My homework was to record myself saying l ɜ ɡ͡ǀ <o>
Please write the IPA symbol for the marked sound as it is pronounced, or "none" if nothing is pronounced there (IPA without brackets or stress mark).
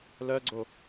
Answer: o